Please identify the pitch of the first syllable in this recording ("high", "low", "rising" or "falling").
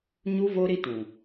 high